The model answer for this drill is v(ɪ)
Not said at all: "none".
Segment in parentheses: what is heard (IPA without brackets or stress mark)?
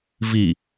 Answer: i